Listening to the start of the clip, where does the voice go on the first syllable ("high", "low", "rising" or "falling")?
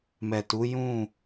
low